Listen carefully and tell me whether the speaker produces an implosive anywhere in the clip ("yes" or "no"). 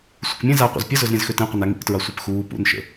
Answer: no